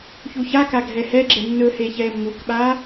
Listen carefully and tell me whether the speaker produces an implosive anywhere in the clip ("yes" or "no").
yes